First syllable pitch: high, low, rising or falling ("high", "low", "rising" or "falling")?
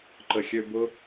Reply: low